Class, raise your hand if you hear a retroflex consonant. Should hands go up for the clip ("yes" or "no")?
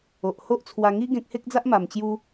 no